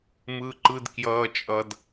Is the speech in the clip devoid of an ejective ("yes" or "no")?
no